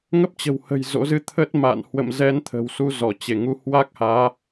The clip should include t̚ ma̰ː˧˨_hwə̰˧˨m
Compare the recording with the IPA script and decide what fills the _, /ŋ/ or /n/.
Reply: n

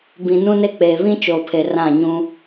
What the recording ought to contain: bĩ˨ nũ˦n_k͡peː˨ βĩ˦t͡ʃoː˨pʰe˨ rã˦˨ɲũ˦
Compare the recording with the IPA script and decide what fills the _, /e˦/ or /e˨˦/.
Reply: e˦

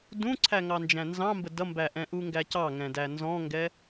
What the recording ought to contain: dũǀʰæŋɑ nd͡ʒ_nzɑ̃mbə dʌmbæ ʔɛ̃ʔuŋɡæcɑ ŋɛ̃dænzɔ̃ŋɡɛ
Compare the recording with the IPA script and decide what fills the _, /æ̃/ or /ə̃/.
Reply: æ̃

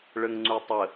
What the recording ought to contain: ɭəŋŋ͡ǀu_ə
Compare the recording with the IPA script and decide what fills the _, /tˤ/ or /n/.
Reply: tˤ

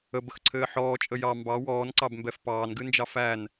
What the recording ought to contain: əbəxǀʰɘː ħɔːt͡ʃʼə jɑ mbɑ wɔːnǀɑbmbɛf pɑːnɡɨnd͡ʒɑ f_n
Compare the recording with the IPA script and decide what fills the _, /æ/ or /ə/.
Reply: æ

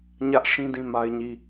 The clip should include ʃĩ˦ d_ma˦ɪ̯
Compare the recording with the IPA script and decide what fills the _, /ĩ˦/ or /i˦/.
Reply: ĩ˦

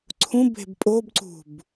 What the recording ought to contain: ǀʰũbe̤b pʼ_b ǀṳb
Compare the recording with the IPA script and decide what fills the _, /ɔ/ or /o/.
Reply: o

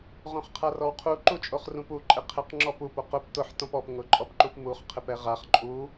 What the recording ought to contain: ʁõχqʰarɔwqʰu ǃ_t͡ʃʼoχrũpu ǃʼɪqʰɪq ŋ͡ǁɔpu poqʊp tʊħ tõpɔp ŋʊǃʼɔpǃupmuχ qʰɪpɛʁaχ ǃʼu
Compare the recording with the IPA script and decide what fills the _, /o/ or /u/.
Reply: u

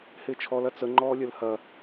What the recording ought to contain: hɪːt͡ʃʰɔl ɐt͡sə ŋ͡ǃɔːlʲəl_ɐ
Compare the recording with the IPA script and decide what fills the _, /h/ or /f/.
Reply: h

